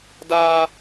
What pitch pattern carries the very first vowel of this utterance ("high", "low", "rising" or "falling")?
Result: high